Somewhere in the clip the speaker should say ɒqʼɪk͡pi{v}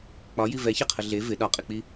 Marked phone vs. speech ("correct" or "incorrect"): incorrect